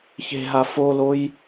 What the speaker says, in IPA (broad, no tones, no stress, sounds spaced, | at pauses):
ç e̤ ɦ a f o l o j